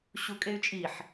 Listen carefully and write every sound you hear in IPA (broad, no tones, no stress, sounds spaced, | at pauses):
ɕ u kʼ e y̯ t͡ʃʼ i ħ